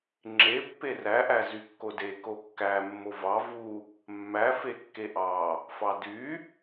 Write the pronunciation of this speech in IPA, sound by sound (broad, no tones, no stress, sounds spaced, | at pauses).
ŋ͡ǁ e pː e r æ ʔ æ z y kː o d e k o kː æ mː o v ɑ v u | mː æ f e kː e ʔ ɑ | f ɑ d y